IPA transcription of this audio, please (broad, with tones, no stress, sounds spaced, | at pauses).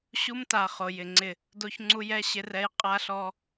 ɕ u˦ m t a˨ χ o˨ j ɪ˨ ŋ͡ǀ ɪ˦˨ | d o˦ ç ŋ͡ǀ u˦ j ɛ˦ ɕ ɪ˦ r ɛ˦ j qʼ a˦ ɬ ɔ˦